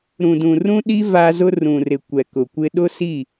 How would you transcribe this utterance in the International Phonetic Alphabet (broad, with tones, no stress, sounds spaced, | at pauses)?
ɾ ũ˨ d ũ˨ r ũ˦ ɗ i˦ v a˦ z ʊ˦ r ũ˨ r ɪ˨ kʷ ɛ˨ k ʊ˨ kʷ ɪ˦ ɗ ʊ˦ s i˦˨